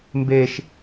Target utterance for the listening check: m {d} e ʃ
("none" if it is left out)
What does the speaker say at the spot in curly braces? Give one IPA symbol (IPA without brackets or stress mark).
b